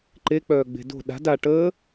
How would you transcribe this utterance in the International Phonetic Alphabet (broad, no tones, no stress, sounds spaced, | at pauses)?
ǃ e k͡p œː ɡ͡b e̤ d o̤ ɗ a̤ d a ʈ əː